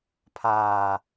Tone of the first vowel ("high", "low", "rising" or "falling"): low